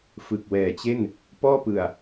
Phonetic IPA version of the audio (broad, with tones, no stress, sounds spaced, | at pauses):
f ɯ˨˩ k̚ w ɛː˨˩ t͡ɕ e˥˩ n | p ɔː˥˩ p ɯ˨˩ a̯